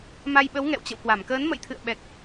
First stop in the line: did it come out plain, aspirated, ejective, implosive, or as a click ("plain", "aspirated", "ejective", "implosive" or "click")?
implosive